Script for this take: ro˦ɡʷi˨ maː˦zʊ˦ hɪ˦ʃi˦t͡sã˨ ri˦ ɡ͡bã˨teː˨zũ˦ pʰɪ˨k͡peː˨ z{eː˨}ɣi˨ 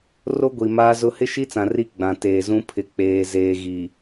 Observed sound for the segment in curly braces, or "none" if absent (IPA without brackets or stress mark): eː˨